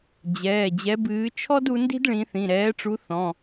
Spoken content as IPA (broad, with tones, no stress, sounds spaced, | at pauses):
d͡ʑ ɛː˩˧˩ d͡ʑ ɛ˨˦ b ɨː˨˦ t͡ʃʰ ɔ˥ d u˨˦ n d i̤˥ d ɭ ĩ˨˦ θ ĩ˩˧˩ ɾ ɛː˨˦ ʈ͡ʂ u˨˦ θ ɔ̃˩˧˩